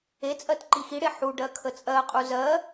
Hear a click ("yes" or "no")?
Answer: yes